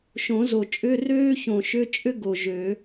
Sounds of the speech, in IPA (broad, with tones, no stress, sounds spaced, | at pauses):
ʃ õ˨˩˦ z o˨˩ t͡ʃʼ ʏ˧˥˧ r øː˥ ç õ˨˩ ʃ ʏ˧˥˧ t͡ʃʼ ʏ˥ ɡ o˨˩ ʒ ø˨˩˦